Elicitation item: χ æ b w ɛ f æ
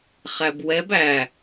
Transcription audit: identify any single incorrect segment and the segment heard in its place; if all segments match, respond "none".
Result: f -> b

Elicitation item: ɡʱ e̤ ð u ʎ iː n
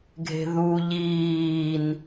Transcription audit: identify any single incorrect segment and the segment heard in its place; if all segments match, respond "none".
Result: none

